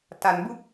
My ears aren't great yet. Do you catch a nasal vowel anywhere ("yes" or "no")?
no